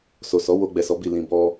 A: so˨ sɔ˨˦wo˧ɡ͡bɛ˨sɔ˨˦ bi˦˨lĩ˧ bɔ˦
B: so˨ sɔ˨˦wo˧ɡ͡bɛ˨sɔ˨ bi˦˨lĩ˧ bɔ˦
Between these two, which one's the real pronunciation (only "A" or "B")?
A